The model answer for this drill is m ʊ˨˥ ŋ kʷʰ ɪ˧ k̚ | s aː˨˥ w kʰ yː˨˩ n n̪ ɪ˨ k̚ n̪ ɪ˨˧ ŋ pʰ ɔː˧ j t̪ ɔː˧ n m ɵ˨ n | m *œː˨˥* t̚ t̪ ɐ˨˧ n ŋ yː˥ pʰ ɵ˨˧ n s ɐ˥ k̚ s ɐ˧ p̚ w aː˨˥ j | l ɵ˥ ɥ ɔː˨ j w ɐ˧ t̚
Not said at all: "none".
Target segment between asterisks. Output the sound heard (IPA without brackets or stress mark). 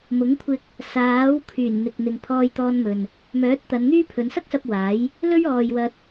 œː˨˥